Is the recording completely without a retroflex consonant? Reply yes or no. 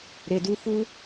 yes